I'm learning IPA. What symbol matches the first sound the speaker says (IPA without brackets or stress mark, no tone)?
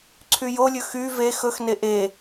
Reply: ǀʰ